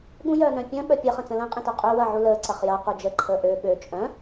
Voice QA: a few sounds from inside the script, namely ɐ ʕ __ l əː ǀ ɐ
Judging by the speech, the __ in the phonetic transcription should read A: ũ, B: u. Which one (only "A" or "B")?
B